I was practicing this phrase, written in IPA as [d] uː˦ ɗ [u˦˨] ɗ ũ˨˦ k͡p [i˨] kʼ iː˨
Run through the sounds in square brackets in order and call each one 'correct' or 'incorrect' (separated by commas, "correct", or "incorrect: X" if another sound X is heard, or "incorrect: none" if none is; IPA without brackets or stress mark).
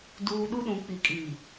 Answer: correct, incorrect: u˦, correct